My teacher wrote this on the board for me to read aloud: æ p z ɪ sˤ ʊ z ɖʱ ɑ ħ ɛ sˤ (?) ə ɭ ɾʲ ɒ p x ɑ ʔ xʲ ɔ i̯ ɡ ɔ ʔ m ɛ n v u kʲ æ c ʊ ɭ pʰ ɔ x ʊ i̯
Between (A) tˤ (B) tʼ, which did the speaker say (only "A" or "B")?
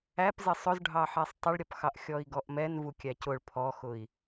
A